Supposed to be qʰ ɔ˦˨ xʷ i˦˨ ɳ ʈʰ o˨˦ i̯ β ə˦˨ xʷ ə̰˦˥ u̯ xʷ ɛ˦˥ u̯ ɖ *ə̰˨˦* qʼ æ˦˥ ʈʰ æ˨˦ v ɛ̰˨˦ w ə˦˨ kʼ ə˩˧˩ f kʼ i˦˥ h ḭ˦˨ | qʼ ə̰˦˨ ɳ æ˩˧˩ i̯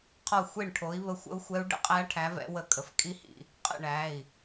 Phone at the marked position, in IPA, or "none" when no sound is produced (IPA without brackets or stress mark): ə̰˦˥